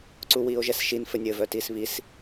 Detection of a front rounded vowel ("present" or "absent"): present